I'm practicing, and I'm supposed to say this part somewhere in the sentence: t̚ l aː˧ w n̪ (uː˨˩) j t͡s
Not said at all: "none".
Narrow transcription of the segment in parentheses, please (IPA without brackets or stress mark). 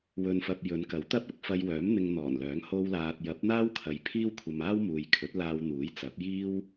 uː˨˥